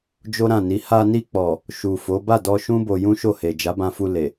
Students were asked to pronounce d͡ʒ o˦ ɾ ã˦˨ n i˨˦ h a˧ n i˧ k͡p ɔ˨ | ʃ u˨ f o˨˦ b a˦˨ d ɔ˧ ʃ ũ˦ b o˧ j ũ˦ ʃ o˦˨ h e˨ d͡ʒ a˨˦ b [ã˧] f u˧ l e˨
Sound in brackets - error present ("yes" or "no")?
no